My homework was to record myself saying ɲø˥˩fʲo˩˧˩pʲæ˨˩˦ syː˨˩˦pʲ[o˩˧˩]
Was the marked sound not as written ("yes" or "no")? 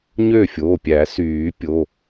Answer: no